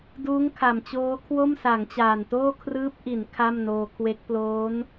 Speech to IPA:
d uː˦˥ ŋ kʰ a˨˩ m t͡ɕ oː˦˥ kʰ w o˥˩ m s a˩˦ ŋ t͡ɕ aː˨˩ n t oː˥˩ kʰ r ɯː˦˥ p̚ ʔ i˩˦ n kʰ a˥˩ m n oː˧ kʰ w e˦˥ k̚ p l oː˦˥ n

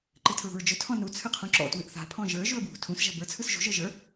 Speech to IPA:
ǃ ɨ tʰ ɹ ṳ ɹ d͡ʒ ɵ tʰ ɔ̃ n u t͡sʰ ɨ qʰ ũ ǁ ɔ̰ t w ɨ ʔ θ a̤ pʰ ɔ̃ ʒ ə˞ ʒ u ə̯ b w ṳ tʰ ũ s ʒ a̤ b ə˞ t͡sʰ ɯ s ʒ ṳ ʒ ə˞ ʒ ə˞

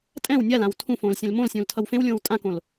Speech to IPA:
tʼ ɛ̃ w nʲ a l ã w tʰ ũ f õː l sʲ ẽ l m õ l sʲ ũː l tʰ ʌ w f ẽ w lʲ õː w tʼ ã k õ l

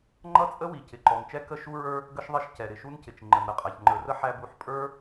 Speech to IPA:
ŋ͡ǃ ʌ˥ t͡sʼ ə˥ w i˩ c ɪ˩ ǃ ɔ˩ n t͡ʃ ɛ˥ k ə˥ ʃ u˥ ɹ ə˞˥ | ɡ ə˥ ʃ ðˤ ɪ˥ ʃ c ɛ˩ ɾ ɪ˩ ʃ u˥ n c ɪ˩ t͡ʃ ŋ͡ǃ ə˩ n ɾ ə˩ qʼ æ˩ ç ŋ͡ǃ ə˞˩ r ə˥ ħ æ˥ b u˩ ħ pʼ ə˞˥

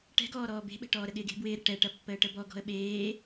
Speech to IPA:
ʈ ɛ̤ ɡ ɔː ɾ ɔː b e̤ ɓ ɛ̤ ʈ ɔː ɾ ə ɠ ɪː ɡ e̤ b w ɪː ɾ ɪ ʈ ɛ ʈ ɐ pː əː ʈ ə b ɔ ɡ ɔ̤ ə̯ ɓ eː

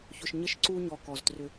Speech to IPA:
ç ʊ˨ ʃ ɲ ə˦ ʃ ǀ u˦ ɲ ɔ˨ k ɔ˨ z t r ʏ˦

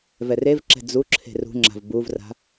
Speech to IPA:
v ɛ r e v ǁ ɛ̤ d͡z u ǁʰ e̤ r ṳ ŋ͡ǁ a̤ v b u v r a̤

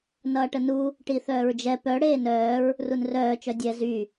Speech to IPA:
n ʌː ʈ ə n u | ʈ i θ œː ɹ d͡ʒ ɛ p œ ɽ eː n œː ɹ | r u n r œː t͡ʃ œ dʲ ɛ z y

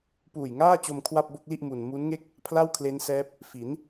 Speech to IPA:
p uː˨˩ j ŋ aː˥˩ t͡ɕ o˧ m kʰ w a˥˩ p̚ b o˥˩ k̚ l i˥˩ ʔ m u˧ n m u˦˥ n ŋ e˥˩ k̚ | pʰ l a˥˩ w kʰ l e˦˥ n s ɛː˦˥ p̚ | f i˩˦ n

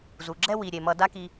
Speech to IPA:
z u˩ ɡ͡ǁ ɛ˥ w i˩ ɾʲ e˩ m ʌ˨ d a˦ k i˨

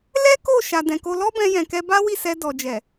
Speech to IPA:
l ɛ˦ k o˦˨ ʃ a˨ d ɛ̃˨ k o˧ l ɔ˦ b ɛ̃˧ j ɛ̃˨ k ɛ˧ b a˦ w i˦˨ s ɛ˧ d ɔ˨ d͡ʒ ɛ˨

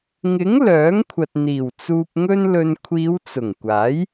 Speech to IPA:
ŋ ɪ˨˥ ŋ l œː˨˥ ŋ kʷʰ ɐ˨ t̚ n̪ iː˨˩ w t͡s uː˧ p̚ ŋ ɵ˥ n l ɵ˧ n kʷʰ iː˨˧ w t͡s ʊ˨˩ ŋ kʷ aː˨˥ j

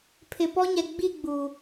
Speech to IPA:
pʰ ɪ˨ p ɔ˦ ɲ ɛ˨ ɡ͡b i˦˨ ɡ͡b u˨

